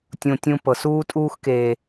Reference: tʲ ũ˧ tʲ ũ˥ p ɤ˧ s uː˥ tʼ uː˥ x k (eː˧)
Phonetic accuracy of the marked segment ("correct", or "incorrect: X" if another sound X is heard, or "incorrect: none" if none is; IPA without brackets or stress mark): correct